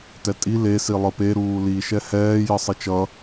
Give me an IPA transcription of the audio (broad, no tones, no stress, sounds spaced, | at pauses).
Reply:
t ɛ tʼ i l e s i lˠ ɯ p e ɾ uː l i ʃ ɛ h ɛː j ʌ sˤ i t͡ʃ ʌ